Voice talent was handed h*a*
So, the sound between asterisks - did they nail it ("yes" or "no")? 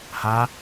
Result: yes